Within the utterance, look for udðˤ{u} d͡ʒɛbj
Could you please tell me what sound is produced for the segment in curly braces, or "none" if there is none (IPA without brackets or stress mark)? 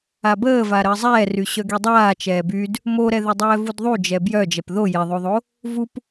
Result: u